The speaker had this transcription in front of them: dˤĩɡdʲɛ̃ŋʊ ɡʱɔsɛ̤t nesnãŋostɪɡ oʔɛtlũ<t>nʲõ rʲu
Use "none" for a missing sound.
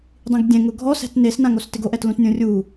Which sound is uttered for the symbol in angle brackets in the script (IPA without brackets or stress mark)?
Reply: t